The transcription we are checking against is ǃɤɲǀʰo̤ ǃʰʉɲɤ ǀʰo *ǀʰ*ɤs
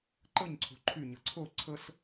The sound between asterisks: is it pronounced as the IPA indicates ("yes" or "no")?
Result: yes